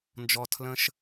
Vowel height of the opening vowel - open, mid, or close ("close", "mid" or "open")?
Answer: mid